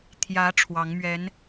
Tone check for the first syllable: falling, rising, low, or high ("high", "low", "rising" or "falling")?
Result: rising